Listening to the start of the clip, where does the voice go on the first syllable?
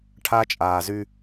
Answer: high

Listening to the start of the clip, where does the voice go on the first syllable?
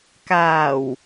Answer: low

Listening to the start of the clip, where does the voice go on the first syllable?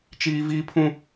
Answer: high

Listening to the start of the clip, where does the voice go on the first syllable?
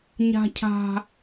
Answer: high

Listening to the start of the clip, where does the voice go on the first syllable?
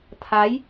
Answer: rising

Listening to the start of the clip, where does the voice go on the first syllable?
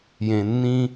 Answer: low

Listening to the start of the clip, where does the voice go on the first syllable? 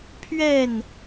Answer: falling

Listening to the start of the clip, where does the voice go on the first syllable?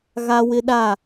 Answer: high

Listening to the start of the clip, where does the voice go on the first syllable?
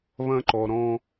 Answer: high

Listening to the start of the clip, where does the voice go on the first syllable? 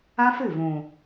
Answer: high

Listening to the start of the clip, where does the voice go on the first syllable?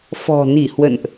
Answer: low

